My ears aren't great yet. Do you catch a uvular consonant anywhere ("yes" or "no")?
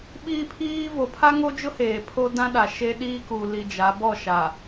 no